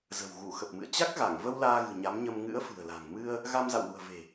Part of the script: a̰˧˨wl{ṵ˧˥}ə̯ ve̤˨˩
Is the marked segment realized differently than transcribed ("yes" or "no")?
yes